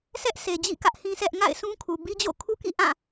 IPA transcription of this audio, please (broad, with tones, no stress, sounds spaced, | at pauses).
s ɛ˦ ʔ sʰ e˨ d͡ʑ ḭ˦˨ k ä˦ ʔ h ĩ˦ sʰ ɛ˦ ʔ ŋ a̰˦˨ ɪ̯ s ũ˦ kʰ u˨ b i˦ d͡ʑ o̰˦˨ kʰ u˦ k ḭ˦˨ ʔ ã˦˨